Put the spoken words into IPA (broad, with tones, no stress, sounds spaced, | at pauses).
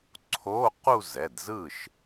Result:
ǀʰ oː˧˥˧ q u˥˧ z ɛ˩˧˩ d z ɯ˥˩ ʃ